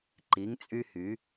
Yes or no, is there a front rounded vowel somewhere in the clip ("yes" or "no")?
yes